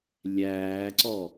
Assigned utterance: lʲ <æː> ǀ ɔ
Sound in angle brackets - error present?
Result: no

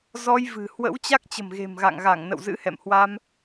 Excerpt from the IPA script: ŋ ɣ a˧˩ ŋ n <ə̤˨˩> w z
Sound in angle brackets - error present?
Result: yes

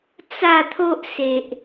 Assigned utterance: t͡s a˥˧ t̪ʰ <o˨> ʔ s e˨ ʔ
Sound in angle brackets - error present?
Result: yes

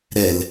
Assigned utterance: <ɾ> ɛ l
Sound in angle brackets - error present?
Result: no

